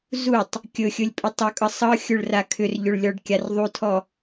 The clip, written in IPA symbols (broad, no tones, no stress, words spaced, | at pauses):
zutˤ | kʲɵxʲɵlʲpʼʏ tˤɵkʼɤ sˤɤxʲɵɭra kʰʏrʎɵɭlʲɔɖkʲar ðˤutʰɔ